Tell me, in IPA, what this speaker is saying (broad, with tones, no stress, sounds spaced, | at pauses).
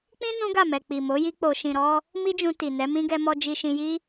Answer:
k͡p ĩ˦ n ũ˦ ɡ a˦˨ m ɛ˨ k͡p i˨ m o˨˦ j i˦ k͡p o˧ ʃ ĩ˧ ɾ ɔ˦ | m i˦ d͡ʒ ũ˧ t i˨ n ɛ˨˦ m ĩ˦ ɡ ɛ˧ m ɔ˧ d͡ʒ i˧ ʃ ĩ˧ j i˦